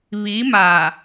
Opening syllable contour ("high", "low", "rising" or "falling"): rising